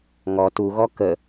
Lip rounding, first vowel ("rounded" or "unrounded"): rounded